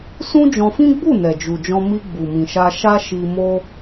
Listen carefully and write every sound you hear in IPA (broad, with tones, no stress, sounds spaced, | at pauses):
s ũ˦ d͡ʒ ɔ̃˧ f ĩ˦ ɡ͡b u˦˨ n ɛ˨ d͡ʒ u˨ d͡ʒ ɔ̃˧ m i˧ ɡ͡b u˨ m ĩ˨ ʃ a˧ ʃ a˦ ʃ i˧ m o˦